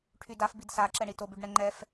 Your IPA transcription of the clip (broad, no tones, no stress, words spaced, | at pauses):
ʈʰydaf bidsa ǁɛɳitob yɖɳɛŋ͡ǃɛf